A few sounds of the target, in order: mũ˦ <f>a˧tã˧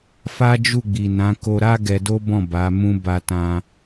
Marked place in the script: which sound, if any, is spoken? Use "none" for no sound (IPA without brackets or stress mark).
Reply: b